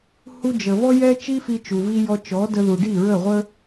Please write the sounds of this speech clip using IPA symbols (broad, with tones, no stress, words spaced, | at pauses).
hu˧d͡ʒə˩ vɔ˥jɛ˥ t͡ʃi˥fi˧t͡ʃu˩vi˧ jɔ˧t͡ʃɔ˩˥də˧ ðu˩ɖi˥˩ɹə˥˩ʁʷə˥